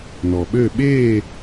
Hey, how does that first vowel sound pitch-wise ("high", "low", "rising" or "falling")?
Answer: low